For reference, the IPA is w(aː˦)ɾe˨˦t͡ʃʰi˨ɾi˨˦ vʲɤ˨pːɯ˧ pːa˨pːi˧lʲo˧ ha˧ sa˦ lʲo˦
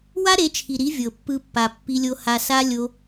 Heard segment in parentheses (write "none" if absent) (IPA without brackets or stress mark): a˦